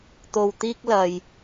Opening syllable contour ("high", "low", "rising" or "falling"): low